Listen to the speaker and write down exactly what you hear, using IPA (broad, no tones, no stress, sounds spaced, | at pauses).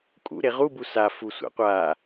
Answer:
kʼ ṵ ɾ e ʁ u b u s a f u sʷ a̰ qʷ a